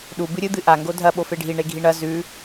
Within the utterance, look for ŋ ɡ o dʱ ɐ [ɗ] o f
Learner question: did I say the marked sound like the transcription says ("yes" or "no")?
no